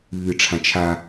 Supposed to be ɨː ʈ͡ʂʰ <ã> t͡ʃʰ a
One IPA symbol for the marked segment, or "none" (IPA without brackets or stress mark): ã